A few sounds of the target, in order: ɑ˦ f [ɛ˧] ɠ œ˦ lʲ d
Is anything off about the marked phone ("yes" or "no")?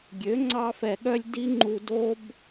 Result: no